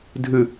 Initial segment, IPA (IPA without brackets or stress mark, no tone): dʱ